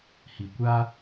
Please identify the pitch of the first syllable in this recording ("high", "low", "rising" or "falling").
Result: low